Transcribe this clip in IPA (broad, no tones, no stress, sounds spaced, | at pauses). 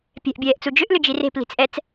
pʲ ɛ̤ ʔ bʲ ɛː ʔ t͡s u d͡ʒ ʏ ʔ l ʏ d͡ʒ i r e̤ p l i̤ t͡s ʔ ɛ t͡s